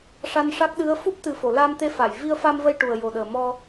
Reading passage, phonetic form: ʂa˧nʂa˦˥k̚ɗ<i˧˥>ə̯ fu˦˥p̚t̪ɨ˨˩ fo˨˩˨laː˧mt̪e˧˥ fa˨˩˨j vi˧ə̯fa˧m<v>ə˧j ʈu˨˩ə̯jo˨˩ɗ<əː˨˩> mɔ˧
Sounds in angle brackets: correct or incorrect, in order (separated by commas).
incorrect, correct, correct